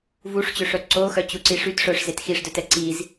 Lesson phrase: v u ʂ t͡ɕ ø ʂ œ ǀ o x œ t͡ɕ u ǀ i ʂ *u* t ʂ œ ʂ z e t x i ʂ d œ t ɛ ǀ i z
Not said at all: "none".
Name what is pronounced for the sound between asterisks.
y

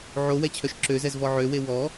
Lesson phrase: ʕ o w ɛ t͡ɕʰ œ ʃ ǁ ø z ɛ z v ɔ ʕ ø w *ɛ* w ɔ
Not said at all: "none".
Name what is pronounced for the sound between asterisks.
e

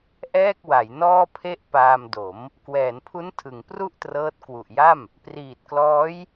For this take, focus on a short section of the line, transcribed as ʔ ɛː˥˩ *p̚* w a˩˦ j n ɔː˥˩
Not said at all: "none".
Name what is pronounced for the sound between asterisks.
k̚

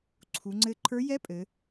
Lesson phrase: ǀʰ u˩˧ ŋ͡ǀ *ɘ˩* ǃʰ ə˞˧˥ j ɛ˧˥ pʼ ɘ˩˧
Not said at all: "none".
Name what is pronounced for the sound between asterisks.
ɘ˧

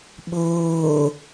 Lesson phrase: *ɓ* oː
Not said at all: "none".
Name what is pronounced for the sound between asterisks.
ɓ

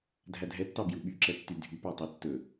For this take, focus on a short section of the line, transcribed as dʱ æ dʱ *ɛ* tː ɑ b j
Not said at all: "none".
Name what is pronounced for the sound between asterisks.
ɛ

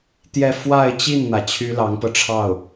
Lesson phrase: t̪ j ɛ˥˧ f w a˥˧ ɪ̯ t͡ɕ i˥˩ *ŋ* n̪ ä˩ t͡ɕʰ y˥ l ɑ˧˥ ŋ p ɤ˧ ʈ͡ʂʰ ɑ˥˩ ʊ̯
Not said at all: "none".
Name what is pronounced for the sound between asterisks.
n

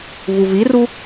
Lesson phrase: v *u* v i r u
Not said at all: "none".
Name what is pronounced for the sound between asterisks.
u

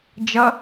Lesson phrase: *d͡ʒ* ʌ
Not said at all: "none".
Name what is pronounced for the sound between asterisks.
d͡ʒ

